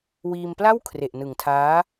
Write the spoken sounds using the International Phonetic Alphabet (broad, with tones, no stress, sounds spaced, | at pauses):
w iː˧ m p l a˥˩ w kʰ r e˨˩ ʔ n ɯ˨˩ ŋ tʰ aː˦˥